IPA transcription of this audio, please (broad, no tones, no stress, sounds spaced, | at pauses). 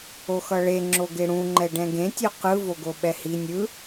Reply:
o x ʌ ɭ e ŋ͡ǁ o ɡ e ɽ ũ ŋ͡ǃ ɛ ɖ ɛ̃ ɡ ẽ tʲ o q ɯ v o ɡ o ɓ ɛ h i nʲ ɯ